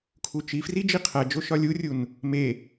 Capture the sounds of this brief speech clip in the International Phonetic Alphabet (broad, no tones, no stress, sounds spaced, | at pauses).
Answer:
kʰ u t͡ʃ i f r i d͡ʒ i qʰ æ d͡ʒ o ʃ ɒ lʲ u rʲ u n | m e